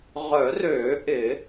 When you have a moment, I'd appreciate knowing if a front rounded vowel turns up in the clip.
yes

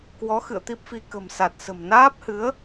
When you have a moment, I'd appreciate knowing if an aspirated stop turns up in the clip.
no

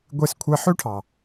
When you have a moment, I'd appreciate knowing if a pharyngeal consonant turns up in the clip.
yes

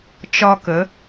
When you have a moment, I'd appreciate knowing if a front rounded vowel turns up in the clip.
no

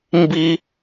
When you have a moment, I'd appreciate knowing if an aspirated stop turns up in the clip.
no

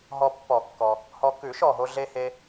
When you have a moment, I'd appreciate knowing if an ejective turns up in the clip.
no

